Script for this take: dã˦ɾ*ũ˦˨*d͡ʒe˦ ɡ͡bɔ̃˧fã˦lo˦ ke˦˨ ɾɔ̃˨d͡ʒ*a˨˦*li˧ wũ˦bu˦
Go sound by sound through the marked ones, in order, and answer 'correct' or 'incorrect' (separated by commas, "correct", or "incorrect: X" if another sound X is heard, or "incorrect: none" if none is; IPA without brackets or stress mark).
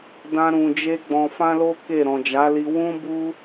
incorrect: ũ˧, correct